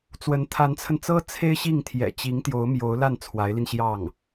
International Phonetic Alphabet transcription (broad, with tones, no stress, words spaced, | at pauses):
t͡swə˧˥nt̪ʰa˧˥nt͡sʰə˧nt͡sɤ˥ t͡sʰe˥ɪ̯ɕi˥˩ŋ t̪ʰjɛ̰˨˩t͡ɕi˧˥ŋt̪jo˧˥ʊ̯ mjo˧˥ʊ̯la˥˩n t͡sʰwa˧˥ɪ̯li˧nɕjɑ˥˩ŋ